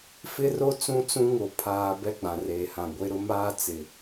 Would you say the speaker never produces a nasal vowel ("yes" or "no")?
no